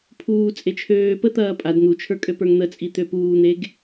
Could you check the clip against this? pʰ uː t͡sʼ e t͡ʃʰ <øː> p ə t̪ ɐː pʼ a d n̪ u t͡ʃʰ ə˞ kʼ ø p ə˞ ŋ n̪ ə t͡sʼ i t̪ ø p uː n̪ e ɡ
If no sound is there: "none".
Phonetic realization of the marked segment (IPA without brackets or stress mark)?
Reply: øː